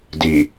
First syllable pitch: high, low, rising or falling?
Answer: low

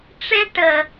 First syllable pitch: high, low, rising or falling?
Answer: high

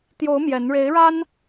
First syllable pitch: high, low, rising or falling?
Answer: rising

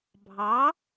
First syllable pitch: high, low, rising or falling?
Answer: rising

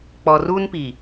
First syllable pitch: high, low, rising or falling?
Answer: low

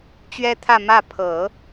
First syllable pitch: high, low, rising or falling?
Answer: high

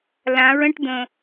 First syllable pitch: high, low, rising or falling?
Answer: rising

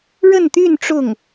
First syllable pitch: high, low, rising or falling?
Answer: falling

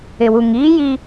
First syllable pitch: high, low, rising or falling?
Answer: low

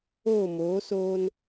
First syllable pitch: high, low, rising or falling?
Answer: falling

